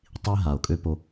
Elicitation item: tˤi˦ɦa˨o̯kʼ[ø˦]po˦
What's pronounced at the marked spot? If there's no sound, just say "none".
ø˦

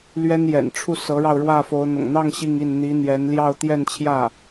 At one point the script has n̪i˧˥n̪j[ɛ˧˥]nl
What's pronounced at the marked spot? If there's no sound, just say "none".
ɛ˧˥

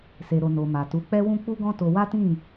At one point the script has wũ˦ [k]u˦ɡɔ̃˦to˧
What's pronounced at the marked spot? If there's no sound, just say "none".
k͡p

